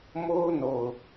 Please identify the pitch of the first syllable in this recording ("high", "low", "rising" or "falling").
high